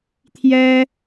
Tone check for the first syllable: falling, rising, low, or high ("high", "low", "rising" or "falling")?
high